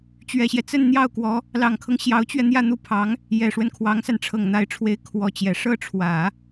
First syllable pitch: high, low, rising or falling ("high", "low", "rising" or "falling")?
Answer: low